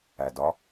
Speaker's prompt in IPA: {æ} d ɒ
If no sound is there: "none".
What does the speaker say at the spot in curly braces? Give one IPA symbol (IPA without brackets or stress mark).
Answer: æ